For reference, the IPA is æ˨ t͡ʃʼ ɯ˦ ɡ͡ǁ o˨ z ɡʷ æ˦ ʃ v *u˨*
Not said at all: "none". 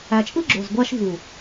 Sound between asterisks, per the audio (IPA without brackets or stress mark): u˨